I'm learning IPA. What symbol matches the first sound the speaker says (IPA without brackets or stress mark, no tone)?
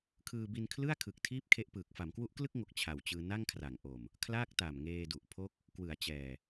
kʰ